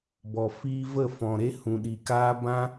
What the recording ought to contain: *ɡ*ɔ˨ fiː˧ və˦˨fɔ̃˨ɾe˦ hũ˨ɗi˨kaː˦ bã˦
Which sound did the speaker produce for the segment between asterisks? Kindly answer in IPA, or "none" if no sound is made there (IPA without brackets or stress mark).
b